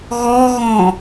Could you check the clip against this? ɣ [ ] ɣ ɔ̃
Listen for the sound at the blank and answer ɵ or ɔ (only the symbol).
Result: ɔ